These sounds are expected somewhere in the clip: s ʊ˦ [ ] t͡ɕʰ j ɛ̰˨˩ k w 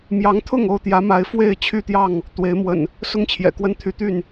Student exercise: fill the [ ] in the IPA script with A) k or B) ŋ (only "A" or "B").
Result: B